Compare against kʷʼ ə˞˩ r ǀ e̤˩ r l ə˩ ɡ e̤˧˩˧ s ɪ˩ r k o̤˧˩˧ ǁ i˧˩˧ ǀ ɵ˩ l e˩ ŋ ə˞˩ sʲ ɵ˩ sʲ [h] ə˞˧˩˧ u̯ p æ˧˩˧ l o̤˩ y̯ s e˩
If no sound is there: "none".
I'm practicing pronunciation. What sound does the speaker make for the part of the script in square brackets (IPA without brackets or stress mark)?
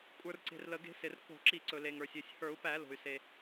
h